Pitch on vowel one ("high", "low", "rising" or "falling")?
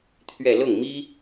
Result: falling